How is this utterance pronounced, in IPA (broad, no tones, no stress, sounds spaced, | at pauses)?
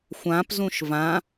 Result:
xʷ ã p z ũ ʃ v ã